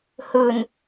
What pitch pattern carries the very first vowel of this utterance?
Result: low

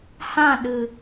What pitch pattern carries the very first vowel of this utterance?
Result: falling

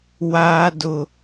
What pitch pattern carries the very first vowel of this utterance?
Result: high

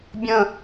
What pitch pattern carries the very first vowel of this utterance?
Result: falling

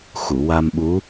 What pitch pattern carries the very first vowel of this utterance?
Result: low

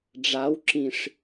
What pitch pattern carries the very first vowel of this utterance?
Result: rising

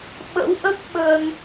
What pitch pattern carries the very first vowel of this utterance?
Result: rising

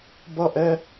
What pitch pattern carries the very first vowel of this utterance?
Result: falling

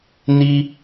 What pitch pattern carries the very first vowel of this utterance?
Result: high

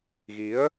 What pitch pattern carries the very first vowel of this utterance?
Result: rising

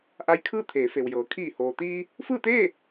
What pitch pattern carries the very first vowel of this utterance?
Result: rising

